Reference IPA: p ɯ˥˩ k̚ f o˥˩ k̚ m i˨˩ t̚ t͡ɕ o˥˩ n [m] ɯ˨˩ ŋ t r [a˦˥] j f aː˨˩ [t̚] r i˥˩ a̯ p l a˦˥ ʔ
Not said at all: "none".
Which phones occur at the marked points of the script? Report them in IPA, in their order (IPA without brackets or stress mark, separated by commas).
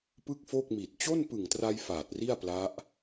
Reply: p, a˧, t̚